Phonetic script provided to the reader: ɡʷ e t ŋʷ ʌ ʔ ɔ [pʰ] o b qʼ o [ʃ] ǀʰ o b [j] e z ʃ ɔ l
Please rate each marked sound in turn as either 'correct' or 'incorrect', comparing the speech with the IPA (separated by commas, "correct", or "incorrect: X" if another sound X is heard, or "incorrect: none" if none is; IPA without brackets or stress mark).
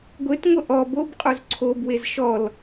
incorrect: b, incorrect: z, incorrect: w